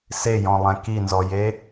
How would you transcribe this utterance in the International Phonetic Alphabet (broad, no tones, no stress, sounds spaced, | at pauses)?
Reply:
s e j ɔ̃ lˠ ɛ̃ k i n z ɔ j e